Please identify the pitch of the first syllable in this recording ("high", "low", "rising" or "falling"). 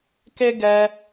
high